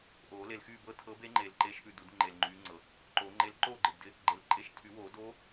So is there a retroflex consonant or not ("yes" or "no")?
no